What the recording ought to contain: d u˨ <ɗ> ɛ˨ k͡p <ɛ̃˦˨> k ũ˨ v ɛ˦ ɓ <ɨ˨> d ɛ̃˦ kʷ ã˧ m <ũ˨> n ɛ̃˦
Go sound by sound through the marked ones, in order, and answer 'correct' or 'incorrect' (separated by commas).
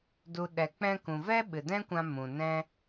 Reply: correct, incorrect, correct, correct